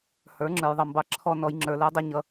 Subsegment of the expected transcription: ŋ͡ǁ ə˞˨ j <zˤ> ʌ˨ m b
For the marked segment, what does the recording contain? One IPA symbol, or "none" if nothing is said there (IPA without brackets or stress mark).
ðˤ